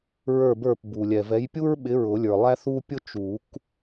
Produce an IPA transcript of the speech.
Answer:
ɹ ə˞˦˨ b ə˞˦˨ p b u˩ lʲ ɛ˩ v ɛ˨˦ j pʲ u˥ ɹ ɓ ɪ˨˦ ɹ ʊ˨˩˦ lʲ ə˞˩ lˠ æ˥ θ u˥ pʲ ʊ˥ t͡ʃ u˨˩˦ k

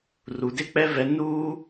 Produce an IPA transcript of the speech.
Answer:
r u˨ d ɪ˦ k͡p ɛ˦ v ɛ˦ n uː˦

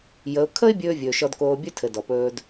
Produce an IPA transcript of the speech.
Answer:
j ə˩˧ ʊ̯ kʰ ə˥ ɪ̯ bʲ ɵː˥ vʲ ɵː˩ ʃ ɔ˧ d k oː˧ bʲ ɵ˥ tʰ ɘ˩ d ɔ˩ p ɵː˧ d

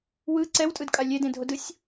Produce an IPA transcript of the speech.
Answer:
w ɯ ǀ ɛ w tʼ ɯ d kʼ a lʲ e d ẽ dʱ o d ɯ sʲ

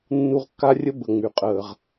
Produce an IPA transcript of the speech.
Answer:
nː u˦ ʁ kː a˥ rʲ ə˥ b ə˨ ŋ͡m y˩ qʼ əː˨ ʁ

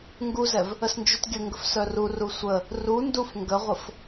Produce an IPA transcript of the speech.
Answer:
ŋ ɡ u z ɛ v | ə s n d͡ʒ u t ɡʲ ə ŋ ɡ ə f s œ r u r u sʷ ə | r u n d u f ŋ ɡ ə ʁʷ ə f

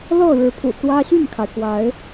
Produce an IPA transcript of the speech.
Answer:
l ɤ˥˨ ɻ ɻ̩˨˦ pʰ ṵ˨˩ t͡s w ä˦ ɕ y˥˨ n kʰ a˩ ɪ̯ k w a˨˦ ɪ̯

